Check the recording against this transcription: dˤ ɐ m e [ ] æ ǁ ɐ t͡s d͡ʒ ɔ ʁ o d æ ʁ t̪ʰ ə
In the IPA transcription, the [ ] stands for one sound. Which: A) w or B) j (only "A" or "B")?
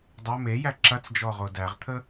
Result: B